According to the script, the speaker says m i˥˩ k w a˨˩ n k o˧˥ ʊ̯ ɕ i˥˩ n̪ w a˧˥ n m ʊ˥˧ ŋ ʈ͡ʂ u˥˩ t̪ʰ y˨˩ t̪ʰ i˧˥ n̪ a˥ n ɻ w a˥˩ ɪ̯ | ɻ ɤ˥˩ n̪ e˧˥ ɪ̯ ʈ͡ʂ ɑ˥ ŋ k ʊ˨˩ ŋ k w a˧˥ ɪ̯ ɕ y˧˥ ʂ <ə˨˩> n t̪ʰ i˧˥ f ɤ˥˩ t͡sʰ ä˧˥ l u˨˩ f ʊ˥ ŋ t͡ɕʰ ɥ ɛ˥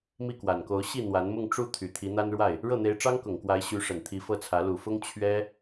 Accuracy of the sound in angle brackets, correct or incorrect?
correct